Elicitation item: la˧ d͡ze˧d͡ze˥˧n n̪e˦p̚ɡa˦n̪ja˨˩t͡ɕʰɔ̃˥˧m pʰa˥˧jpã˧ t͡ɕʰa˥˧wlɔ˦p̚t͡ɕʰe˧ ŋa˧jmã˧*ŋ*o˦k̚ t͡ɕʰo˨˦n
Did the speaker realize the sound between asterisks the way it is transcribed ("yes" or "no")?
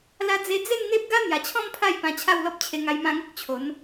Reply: yes